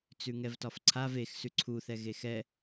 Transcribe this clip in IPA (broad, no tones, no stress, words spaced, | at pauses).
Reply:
t͡sʉŋɛvtɒfǀʰav ex sʉǀʰu θɛɣexɛ